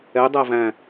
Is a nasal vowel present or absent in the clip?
present